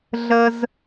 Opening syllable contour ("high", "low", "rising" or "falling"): low